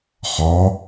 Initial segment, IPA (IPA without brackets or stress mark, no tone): χ